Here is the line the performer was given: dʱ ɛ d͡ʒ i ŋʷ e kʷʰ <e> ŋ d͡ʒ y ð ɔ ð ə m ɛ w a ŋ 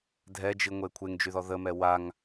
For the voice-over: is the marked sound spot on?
yes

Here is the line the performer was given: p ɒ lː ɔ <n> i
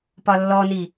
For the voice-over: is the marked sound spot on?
yes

